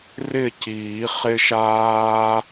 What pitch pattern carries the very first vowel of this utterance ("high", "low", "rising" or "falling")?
falling